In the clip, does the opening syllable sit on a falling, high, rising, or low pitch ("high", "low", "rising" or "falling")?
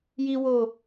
high